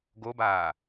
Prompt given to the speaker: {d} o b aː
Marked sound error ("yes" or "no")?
yes